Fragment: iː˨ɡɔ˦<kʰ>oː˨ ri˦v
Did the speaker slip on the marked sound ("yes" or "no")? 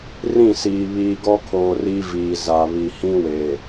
no